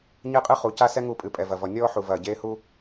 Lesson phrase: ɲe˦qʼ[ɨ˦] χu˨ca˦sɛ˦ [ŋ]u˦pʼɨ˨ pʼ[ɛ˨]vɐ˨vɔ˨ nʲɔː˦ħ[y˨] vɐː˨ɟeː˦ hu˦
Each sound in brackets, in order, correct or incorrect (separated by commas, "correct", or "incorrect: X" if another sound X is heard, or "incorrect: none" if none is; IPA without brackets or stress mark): correct, correct, correct, incorrect: u˨